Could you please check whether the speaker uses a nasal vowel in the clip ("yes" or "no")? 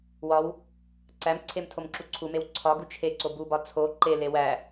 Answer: no